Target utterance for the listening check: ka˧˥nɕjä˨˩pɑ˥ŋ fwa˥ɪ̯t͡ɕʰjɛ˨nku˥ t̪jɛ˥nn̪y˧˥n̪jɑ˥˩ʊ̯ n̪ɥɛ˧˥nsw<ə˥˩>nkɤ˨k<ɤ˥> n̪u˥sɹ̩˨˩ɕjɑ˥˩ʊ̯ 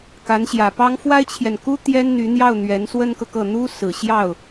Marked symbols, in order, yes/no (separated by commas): no, no